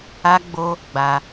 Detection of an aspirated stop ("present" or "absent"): absent